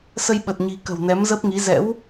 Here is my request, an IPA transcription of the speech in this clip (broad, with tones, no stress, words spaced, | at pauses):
sə˧jɓə˨˩t̚ ɲi̤˨˩ kə̤˨˩wnɛ˨˦mzə˦˥p̚ŋi˨˦ zɛ̰˧˥w